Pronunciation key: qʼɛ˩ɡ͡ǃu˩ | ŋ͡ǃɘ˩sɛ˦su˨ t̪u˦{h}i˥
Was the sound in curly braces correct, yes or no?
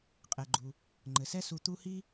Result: yes